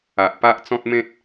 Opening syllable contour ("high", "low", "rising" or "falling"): low